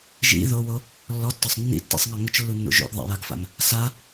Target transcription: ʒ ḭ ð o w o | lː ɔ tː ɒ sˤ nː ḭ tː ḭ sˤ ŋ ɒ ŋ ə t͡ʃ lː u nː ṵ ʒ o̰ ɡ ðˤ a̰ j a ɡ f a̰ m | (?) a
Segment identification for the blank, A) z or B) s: B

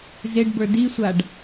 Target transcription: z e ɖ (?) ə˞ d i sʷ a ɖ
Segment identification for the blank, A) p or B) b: B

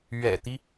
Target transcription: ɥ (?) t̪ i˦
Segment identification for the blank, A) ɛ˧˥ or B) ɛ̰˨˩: B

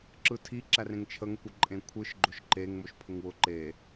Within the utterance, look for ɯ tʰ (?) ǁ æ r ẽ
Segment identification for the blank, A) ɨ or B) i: B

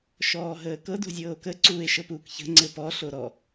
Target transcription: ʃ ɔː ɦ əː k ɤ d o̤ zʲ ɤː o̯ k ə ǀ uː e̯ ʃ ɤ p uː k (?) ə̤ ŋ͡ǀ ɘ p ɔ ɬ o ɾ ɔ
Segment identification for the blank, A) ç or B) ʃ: A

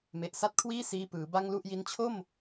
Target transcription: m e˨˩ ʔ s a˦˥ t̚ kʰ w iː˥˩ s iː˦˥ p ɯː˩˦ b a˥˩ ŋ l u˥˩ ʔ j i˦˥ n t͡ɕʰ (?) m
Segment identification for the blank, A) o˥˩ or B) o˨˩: A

